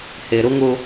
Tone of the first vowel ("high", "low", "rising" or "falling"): low